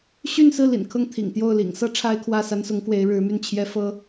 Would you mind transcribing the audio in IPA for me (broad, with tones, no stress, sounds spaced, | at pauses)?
ɕ y˥˧ n s ɹ̩˥˩ l ḭ˨˩ n kʰ ɤ˥˩ ŋ t̪ʰ ḭ˨˩ ŋ t̪ j o˥˩ ʊ̯ l ḭ˨˩ ŋ s ɤ˥ ʈ͡ʂʰ a˥ ɪ̯ kʰ w ä˥˩ s a˥ n s ʊ˧˥ ŋ k w e˧˥ ɪ̯ ɻ ɻ̩˧˥ m y˥˩ n t͡ɕʰ j ɛ˥ f ɤ˥